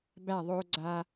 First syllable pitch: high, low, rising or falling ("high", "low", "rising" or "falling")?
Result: falling